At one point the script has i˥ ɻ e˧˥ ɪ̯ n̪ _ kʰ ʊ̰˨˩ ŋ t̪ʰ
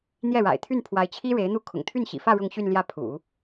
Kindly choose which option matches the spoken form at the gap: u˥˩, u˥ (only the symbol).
u˥˩